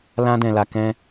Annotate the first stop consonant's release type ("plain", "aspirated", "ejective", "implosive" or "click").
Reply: plain